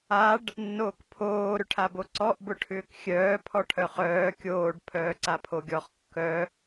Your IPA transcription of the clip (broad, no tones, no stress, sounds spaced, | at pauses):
a ɖ | nː oː k pʰ oː ɾ ʏ ʈʰ a b o ǀ ɔ ʔ b ʊ ʈʰ ʏː k xʲ œː pʰ ɔ ʈʰ œ χ œː kʲ oː ɖ pʰ œː ǀ a pʰ o ɡʲ ɔ χ kː œ